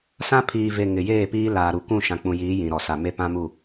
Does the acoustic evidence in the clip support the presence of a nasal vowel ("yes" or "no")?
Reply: yes